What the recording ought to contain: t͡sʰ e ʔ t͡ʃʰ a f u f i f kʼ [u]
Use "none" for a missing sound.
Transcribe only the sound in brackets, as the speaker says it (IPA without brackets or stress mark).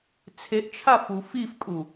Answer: u